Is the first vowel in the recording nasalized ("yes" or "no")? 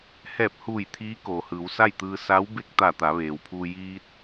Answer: no